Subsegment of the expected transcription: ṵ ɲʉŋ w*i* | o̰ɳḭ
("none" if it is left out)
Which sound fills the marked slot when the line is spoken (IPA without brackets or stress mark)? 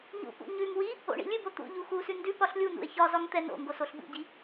i